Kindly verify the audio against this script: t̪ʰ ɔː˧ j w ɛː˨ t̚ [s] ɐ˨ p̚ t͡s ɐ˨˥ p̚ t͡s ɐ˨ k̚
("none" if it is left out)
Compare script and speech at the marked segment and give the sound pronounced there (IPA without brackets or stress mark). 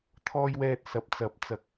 s